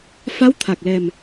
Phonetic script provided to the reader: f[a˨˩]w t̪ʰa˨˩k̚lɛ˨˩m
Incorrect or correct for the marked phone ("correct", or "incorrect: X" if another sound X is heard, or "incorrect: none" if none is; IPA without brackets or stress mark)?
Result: incorrect: a˧˥